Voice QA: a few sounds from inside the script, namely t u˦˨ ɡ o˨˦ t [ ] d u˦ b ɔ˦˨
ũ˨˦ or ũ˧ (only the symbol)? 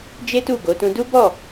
ũ˧